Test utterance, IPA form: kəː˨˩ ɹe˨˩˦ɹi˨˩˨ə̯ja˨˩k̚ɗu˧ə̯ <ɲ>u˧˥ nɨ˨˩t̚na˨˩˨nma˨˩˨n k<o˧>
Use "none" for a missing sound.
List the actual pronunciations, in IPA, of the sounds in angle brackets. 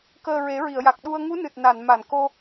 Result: ŋ, o˧

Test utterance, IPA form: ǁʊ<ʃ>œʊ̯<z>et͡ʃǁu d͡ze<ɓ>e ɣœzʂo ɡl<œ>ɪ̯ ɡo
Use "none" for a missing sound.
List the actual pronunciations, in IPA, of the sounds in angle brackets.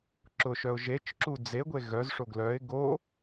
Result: ʃ, ʒ, ɡʷ, œ

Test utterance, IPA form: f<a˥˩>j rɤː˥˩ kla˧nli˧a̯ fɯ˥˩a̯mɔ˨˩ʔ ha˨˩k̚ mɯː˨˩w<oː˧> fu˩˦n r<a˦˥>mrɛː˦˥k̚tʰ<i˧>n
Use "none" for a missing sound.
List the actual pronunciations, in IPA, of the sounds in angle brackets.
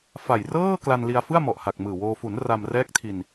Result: a˨˩, oː˧, a˧, i˧

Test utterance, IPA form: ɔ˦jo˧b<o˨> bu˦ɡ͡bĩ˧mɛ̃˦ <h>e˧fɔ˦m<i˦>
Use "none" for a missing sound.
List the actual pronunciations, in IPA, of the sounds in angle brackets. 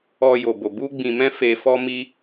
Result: o˧, f, i˦

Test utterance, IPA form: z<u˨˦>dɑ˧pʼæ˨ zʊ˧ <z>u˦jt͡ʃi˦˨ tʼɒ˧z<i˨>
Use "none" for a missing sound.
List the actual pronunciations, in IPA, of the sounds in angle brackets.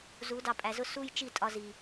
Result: u˨˦, s, i˨

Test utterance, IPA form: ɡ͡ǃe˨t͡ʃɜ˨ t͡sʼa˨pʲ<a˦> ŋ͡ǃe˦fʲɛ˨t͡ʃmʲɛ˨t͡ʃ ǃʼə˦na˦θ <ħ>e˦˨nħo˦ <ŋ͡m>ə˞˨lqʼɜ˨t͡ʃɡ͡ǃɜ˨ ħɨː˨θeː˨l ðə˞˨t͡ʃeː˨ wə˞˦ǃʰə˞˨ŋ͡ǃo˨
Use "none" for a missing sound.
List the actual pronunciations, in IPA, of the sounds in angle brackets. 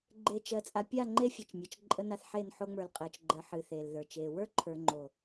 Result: a˦˨, ħ, ŋ͡m

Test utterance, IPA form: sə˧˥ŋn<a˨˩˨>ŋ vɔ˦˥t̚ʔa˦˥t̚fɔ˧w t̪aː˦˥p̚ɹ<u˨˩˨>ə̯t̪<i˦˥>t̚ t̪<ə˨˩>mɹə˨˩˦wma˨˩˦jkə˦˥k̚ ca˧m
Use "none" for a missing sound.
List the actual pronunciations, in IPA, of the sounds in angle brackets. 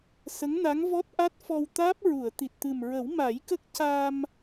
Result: a˧˥, u˨˩˨, i˨˩, ɨ˨˩

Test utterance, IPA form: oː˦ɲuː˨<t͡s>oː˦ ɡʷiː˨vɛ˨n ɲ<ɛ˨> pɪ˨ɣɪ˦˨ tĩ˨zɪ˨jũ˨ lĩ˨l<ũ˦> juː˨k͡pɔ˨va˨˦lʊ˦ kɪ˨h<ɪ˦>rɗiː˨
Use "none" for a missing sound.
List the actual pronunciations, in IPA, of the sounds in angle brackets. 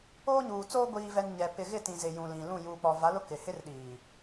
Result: t͡s, ɛ˨, ũ˦˨, ɪ˦

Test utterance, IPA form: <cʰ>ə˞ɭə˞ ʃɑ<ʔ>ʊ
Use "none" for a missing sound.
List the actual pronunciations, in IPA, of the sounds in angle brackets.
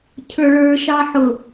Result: cʰ, ħ

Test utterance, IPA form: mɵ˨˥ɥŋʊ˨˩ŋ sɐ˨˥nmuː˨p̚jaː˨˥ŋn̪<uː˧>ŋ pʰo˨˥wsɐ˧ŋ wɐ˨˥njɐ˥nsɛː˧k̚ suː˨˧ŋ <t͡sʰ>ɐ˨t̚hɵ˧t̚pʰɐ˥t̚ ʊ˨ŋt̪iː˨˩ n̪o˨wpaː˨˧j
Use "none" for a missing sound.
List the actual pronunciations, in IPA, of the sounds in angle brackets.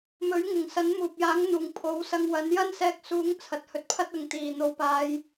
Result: uː˨˩, t͡sʰ

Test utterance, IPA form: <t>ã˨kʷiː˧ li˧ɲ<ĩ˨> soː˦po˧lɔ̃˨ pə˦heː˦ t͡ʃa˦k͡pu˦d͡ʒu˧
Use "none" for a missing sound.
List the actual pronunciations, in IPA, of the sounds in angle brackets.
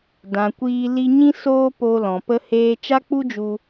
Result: d, ĩ˦

